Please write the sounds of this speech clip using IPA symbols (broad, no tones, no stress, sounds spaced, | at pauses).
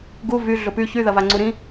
ɡ u v y ɮ ʊ p y ç y ð ɐ v a ŋ͡ǀ u ɾ ĩ